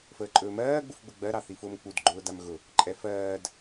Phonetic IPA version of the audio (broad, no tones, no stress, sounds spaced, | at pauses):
f əː ǃʼ ɵː m ɜː ɡ͡b u f ɡ͡b ʊ ɡ͡b ɜ ɾ ɑ θ i f ʊː m k͡p u d ɡ͡ǃ ʊː d a m ɣ ʊ | ǃʼ ɛ f ɜː d